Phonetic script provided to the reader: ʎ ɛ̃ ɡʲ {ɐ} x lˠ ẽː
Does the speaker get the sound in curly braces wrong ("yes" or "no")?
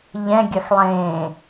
no